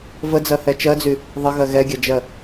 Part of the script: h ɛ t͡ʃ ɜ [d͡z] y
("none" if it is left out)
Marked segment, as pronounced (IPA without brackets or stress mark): d͡z